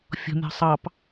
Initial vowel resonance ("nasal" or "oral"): oral